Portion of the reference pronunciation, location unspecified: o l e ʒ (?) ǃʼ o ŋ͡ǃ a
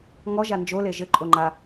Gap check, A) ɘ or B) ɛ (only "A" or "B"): A